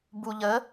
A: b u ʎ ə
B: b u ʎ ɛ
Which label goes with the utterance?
A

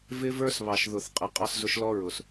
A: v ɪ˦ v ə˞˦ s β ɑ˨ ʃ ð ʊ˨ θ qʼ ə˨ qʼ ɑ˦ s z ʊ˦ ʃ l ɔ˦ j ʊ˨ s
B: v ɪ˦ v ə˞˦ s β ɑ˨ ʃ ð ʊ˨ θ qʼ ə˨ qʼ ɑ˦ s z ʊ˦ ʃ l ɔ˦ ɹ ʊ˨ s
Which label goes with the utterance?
B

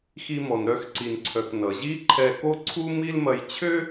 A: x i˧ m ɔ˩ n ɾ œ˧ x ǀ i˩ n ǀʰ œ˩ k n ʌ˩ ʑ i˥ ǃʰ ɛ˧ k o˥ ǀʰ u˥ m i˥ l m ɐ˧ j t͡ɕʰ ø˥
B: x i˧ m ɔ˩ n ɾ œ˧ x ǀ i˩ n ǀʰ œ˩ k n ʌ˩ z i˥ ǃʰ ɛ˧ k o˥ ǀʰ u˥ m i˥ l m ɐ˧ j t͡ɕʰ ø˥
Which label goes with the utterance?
A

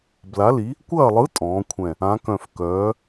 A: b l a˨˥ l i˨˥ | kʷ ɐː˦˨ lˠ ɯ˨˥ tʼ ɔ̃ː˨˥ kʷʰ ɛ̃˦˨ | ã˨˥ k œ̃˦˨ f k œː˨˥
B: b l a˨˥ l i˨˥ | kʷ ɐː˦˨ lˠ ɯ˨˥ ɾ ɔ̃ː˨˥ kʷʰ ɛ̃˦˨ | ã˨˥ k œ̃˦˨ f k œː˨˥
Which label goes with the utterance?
A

